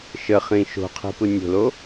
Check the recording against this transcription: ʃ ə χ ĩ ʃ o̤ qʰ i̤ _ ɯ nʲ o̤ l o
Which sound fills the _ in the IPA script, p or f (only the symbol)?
p